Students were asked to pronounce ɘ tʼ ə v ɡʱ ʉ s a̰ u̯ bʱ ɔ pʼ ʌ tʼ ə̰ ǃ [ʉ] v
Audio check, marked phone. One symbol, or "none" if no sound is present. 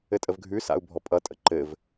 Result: ɘ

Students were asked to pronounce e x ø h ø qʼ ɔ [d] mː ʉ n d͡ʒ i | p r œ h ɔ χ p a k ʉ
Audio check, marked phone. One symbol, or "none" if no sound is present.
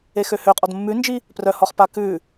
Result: d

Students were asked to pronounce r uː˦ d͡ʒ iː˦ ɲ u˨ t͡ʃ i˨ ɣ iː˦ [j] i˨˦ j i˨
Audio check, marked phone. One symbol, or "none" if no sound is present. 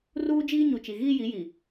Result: j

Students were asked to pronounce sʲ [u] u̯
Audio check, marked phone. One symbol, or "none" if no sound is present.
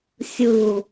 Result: ɯ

